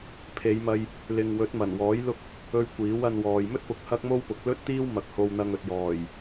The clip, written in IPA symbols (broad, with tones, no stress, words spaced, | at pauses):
pʰe˨˧jmɐ˧j | lɪ˨ŋwɵ˨˥t̚mɐ˨˩nwɔː˨˥j lʊ˥k̚ | ɵ˧ɥ kʷiː˨˥wɐ˧nwɔː˨j mɵ˥t̚pʊ˨k̚ hɐ˥k̚mo˥w pʊ˨˥k̚lɵ˥t̚t̪iː˥w mɐ˨k̚ho˧wn̪ɐ˧ŋ ɵ˨t̚jɔː˨˩j